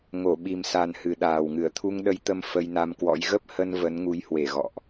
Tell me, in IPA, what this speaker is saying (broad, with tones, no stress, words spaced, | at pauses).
ŋo˧˩ɓi˨˩msa˨˩n hɨ˨˩ɗaː˨˩wŋɨ˧˩ə̯t̪ʰu˧ŋ ɗə˧jt̪ə˧m fə˧jna˧m kwɔ̰˧˥j ɣə˦˥p̚hə˧n və˨˦nŋu˨˦jhwe˧˩ ɣɔ̰˧˨ʔ